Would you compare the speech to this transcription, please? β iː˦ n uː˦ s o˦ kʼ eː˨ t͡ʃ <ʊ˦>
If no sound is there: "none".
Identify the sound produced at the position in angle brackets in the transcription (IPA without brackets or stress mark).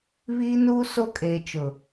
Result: ʊ˨